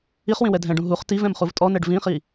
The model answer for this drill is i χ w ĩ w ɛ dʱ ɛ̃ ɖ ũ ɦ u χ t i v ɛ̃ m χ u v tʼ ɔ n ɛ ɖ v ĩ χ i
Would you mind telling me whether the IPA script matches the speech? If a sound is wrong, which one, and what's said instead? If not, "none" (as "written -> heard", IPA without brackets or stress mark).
none